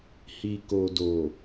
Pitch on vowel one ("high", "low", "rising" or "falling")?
low